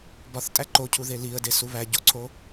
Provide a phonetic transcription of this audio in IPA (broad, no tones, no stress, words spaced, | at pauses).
bɒθtʼæ ǃocʰuðe liə̯desu βæɟoǀʰo